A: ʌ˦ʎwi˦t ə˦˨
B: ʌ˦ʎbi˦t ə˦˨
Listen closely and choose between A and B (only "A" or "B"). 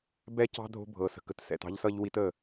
A